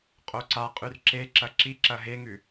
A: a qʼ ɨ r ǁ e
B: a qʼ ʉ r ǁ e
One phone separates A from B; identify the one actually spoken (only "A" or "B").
B